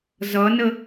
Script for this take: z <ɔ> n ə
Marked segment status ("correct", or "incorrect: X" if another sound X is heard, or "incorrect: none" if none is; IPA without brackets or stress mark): incorrect: ʌ